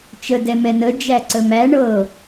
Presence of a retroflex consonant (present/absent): present